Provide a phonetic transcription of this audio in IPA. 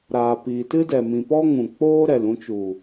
ɾ aː˨ p iː˨ t ɨ˦ d ɛ˨ m ĩ˨ p ɔ˦ ŋ ũ˨ k͡p oː˦ ɾ ɛ˨ l ũ˧ t͡ʃ u˨

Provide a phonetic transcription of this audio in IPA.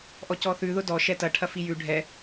ʔ ɔ c ɔ θ ʉ ð ʊ d ɔ ʃ ɛ t ɐ ʈʰ ɐ f i j ʉ ɖʱ ɛ

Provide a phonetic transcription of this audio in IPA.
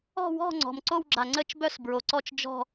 ɔ̤˥˧ w ɔ̤˥˧ ŋ͡ǀ ɔ̤˨ m ǀ o˥˧ w ɡ͡ǁ a˨ ŋ͡ǀ ə˥˧ t͡ʃ b œ˥˧ s b ɹ o˨ ǀ ɔ˥˧ t͡ʃ d͡ʒ ɔ̤˥˧

